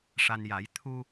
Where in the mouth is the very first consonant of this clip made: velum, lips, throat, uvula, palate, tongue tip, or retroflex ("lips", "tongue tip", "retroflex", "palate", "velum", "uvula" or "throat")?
retroflex